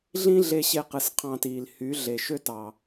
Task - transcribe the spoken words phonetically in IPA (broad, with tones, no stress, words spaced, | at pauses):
ɮĩ˦ɮe˧ɕe˧ qɯ˨s qʰɑ̃˧tiː˨l hy˨˦ ɮe˨ ʃø˦ tɑ˨